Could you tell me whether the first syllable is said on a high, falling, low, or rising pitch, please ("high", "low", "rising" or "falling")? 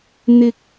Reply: low